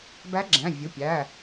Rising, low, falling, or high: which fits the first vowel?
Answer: rising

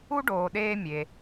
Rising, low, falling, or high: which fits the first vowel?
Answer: high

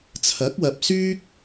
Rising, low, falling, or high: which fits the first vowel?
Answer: rising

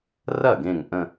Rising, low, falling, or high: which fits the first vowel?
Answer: falling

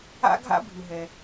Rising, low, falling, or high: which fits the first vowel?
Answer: high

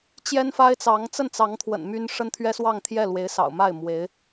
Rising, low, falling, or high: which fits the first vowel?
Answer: high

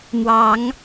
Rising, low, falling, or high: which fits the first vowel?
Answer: rising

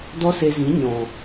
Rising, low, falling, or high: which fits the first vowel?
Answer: high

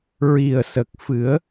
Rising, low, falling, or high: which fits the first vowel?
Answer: low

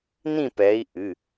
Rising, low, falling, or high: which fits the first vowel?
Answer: falling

